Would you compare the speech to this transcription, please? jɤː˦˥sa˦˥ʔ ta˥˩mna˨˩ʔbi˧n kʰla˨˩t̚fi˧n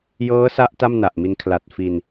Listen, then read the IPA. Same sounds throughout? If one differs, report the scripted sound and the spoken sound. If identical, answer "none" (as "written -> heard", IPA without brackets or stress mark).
b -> m